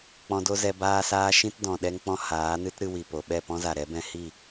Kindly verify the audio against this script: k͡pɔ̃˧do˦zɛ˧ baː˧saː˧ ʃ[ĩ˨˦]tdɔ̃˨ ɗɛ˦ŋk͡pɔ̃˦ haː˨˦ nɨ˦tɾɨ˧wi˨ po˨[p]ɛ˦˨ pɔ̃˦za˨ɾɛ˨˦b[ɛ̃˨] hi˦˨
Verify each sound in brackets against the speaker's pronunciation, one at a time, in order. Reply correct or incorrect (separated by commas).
incorrect, incorrect, incorrect